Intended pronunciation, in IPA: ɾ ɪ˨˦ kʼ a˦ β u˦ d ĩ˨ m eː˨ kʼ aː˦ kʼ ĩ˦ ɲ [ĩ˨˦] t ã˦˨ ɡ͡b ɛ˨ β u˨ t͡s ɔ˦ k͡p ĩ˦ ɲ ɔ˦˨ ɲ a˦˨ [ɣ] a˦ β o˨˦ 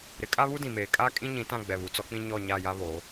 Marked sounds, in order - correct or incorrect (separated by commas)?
correct, incorrect